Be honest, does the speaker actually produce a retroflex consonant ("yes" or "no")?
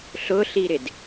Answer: no